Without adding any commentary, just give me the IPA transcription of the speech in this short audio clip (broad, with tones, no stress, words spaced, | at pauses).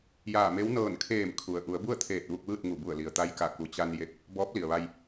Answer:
jaː˧˩me˧˥w nɤː˧˩nkʰeː˧˩m kʰu˩ə̯ ʔu˩˧ə̯bu˥˨ə̯t̪ʰeː˧˩t̚ ʋu˧k̚ʋɯː˥˨t̚ŋu˧˩ bu˧˩ə̯li˩ə̯ t̪a˧˥jka˧˩ku˩ t͡ɕa˧n je˧k̚ | bɔː˧˥p̚li˩ə̯ʋa˧j